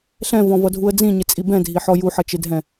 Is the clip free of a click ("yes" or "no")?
yes